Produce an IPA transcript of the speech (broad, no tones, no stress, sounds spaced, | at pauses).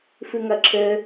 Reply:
f ɨ ŋ ɐ ǁʰ ɘ